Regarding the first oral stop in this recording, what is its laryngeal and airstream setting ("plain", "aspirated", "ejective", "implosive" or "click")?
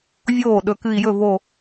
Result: implosive